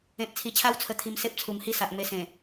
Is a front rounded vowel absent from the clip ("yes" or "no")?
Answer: yes